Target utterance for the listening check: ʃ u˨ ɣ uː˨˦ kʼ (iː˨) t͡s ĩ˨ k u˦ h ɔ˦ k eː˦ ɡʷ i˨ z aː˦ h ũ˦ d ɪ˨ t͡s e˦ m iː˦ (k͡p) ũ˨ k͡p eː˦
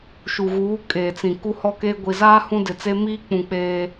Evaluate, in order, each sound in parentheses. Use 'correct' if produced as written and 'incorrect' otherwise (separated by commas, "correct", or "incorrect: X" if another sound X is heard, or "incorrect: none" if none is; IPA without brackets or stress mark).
incorrect: eː˨, correct